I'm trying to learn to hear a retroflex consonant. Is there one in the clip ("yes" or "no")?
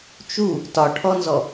yes